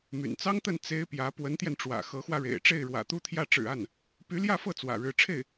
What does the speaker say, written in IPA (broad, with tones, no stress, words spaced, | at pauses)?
my̰˨˩n t͡sɑ˥ŋt̪ə˥˩n t͡se˥ɪ̯pjä˧˥ pwə˧˥nt̪jɛ˧nʈ͡ʂwä̰˨˩ xɤ˧˥xwä˧ɻḛ˨˩ɪ̯ ʈ͡ʂe˥˩ɪ̯ɻwä̰˨˩t̪u˥t̪ʰjä˥˩ ʈ͡ʂɻ̩˨˩a˥˩n | py˧˥ljä˥˧fɤ˥˩ t͡swä̰˨˩ɻɻ̩˧˥ ʈ͡ʂʰe˥˩ɪ̯